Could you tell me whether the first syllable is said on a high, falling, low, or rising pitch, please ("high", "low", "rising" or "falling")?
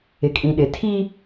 low